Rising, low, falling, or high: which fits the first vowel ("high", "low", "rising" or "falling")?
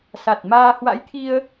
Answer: low